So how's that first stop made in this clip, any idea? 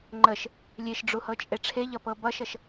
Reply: click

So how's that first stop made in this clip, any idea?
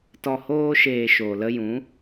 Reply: plain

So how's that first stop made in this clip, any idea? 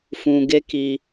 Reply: plain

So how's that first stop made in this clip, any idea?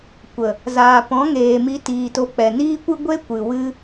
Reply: plain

